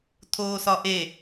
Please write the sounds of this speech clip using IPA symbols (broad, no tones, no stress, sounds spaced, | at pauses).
tʰ oː s ɒ ʔ e